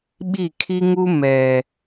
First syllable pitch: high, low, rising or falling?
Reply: falling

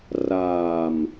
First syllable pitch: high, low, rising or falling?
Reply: low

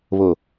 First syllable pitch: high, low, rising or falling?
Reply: low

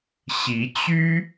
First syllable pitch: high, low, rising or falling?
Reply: rising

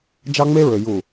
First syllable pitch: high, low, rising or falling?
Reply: high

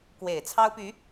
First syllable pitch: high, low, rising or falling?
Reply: low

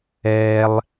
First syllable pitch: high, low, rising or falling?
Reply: high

